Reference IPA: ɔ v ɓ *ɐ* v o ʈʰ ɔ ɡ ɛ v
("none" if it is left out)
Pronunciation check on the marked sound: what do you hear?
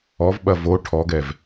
ɐ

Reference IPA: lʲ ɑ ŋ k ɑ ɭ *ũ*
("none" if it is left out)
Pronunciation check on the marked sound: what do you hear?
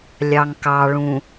ũ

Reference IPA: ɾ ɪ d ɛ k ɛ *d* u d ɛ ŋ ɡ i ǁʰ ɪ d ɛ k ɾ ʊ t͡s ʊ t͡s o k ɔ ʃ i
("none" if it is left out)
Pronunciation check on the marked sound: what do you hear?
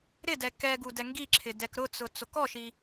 ɡ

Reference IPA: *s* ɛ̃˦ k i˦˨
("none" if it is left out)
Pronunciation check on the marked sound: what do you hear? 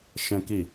ʃ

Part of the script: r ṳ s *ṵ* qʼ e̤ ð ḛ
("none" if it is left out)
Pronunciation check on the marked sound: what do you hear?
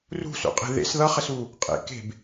ṵ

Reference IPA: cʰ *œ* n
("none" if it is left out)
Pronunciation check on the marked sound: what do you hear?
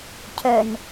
œ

